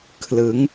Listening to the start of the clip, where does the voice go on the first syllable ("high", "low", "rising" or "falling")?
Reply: rising